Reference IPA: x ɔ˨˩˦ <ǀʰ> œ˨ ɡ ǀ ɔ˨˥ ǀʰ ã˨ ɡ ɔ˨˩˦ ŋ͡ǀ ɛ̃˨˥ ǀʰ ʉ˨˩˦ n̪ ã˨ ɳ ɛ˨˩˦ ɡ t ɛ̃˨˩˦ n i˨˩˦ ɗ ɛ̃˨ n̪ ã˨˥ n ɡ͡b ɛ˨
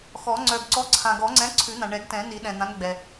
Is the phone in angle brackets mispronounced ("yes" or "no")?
yes